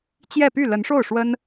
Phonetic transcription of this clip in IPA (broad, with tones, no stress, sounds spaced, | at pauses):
t͡ɕ j ɛ˥˧ p y˥˩ l ə˧˥ n ʂ o˥˩ ʊ̯ ʂ w ə˥ n